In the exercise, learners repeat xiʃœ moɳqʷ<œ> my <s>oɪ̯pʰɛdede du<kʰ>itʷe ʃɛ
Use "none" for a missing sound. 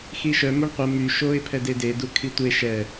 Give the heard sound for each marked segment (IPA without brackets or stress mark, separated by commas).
ə, ʃ, kʰ